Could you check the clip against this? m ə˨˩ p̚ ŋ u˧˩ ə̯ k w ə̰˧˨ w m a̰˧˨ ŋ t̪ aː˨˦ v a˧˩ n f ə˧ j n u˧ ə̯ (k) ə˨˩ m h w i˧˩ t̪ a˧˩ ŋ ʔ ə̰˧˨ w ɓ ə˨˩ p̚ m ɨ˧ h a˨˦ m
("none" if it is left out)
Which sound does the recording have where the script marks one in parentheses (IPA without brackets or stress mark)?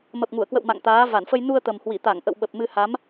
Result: t̪